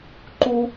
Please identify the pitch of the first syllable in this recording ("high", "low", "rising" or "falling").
high